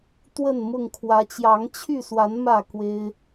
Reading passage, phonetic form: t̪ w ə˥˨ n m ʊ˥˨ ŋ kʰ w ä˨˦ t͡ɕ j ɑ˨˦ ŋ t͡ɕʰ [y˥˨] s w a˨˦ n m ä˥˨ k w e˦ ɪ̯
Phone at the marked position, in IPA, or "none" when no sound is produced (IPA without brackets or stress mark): y˥˨